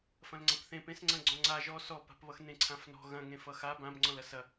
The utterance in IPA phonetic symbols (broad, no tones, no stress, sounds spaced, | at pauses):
f ɐ̃ l ŋ͡ǀ ã p θ ẽ p ẽ s ŋ͡ǀ ɐ̃ ɡ͡ǀ ɔ̃ ŋ͡ǀ a ʒ ɔ s ɔ p a̤ p β ʌ x n ẽ ǀʰ ã f n ɔ̤ ɣ ɐ̃ ŋ ẽ f ʌ x a b ã b ŋ͡ǀ ɔ̃ l ɐ s ɐ